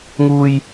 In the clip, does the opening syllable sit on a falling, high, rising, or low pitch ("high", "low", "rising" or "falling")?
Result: low